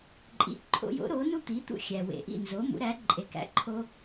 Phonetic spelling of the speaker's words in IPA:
ǃʼ ḭ˩˥ ǃʰ o̰˧ j o̰˩˥ ɾ o˩˥ n u˥ t̪ i˩˥ t̪ ṵ˥˩ xʲ æ˩ w ḛ˩ ʔ ḭ˥˩ n z o˩˥ m ṵ˩˥ ɾ æ˩˥ ǃʼ e˩˥ k æ̰˩˥ ǃʰ o˧

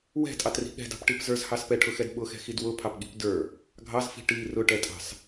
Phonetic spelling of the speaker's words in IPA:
w ɛ̤ tʼ ɑ t r i̤ ɠ ɛ̤ d ɑ̤ p ʈ i p z ə˞ z h ɑ s p ɛ ʈʰ ʊ x ɛ d ɓ ʊ x ɛ̤ x i d w ʊ pʰ ɑ p ɠ i̤ p d ə˞ | ɡʱ ɑ z f i̤ ʈ i r ʊ ʈ ɛ tʼ ɑ̤ s

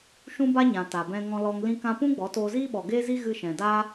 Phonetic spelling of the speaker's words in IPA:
ʃ ũ˦ b a˦ ɲ ã˨ t a˨ b ɛ̃˧ ŋ ɔ̃˧ l ɔ˧ ŋ l ĩ˧ k ã˧ p ũ˦ ɡ͡b ɔ˨˦ t oː˧ z iː˦ ɓ ɔ˨ ɡ eː˦ z i˦ ɣ ɨ˧ ʃ ɛ̃˨ d a˦

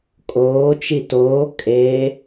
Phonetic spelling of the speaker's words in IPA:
kʼ oː t͡ʃ i t oː kʼ e

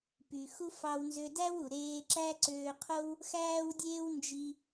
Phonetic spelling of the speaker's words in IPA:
p y˩ x u˧ f ɑ˧ w n z ø˧ d æ˥ w u˩ ɾ eː˧ ǁ æ˥ ǀ øː˧ qʰ o˥ w | x æː˥ w dʲ eː˥ w n d͡ʒ i˧

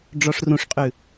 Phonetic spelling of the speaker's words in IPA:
ɖ͡ʐ ɔ ʂ r ũ ʂ qʼ ʉ

